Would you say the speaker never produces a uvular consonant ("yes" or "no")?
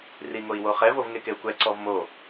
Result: no